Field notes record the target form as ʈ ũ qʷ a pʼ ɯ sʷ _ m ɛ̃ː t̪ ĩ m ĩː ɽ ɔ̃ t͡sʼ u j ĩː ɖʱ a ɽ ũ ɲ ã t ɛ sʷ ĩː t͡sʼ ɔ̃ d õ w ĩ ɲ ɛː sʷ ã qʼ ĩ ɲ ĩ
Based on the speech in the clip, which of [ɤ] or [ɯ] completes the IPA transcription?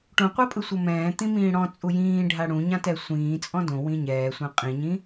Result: ɤ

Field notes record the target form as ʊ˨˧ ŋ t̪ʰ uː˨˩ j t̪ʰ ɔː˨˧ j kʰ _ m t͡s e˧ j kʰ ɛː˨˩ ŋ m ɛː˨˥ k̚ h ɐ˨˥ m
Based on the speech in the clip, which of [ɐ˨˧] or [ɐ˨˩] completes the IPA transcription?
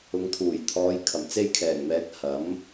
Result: ɐ˨˩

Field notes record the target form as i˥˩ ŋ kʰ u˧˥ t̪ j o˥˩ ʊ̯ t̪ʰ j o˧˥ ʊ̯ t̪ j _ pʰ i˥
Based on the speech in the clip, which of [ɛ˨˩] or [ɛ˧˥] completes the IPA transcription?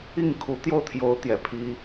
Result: ɛ˨˩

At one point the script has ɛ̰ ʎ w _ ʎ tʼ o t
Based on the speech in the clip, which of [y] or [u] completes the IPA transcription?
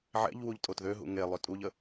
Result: u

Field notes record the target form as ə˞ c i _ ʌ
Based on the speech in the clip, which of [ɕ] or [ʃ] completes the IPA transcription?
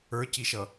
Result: ʃ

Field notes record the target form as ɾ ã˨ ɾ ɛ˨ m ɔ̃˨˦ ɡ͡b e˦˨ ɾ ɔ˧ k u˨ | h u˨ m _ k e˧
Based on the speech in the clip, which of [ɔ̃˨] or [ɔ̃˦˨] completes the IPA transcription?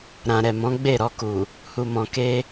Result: ɔ̃˨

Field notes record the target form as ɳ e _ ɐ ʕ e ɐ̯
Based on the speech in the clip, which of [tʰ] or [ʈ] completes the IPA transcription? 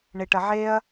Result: ʈ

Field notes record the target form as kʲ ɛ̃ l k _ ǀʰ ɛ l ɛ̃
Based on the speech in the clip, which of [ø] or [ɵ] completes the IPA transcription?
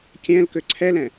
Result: ø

